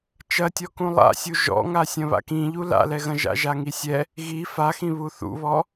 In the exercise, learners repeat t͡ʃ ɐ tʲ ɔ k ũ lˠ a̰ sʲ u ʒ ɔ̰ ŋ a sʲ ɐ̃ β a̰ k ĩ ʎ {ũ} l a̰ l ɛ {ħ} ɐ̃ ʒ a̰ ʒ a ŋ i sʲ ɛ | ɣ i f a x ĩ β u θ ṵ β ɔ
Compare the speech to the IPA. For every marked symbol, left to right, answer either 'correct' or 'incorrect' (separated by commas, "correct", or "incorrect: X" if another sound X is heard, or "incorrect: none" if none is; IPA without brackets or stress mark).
incorrect: u, incorrect: ɣ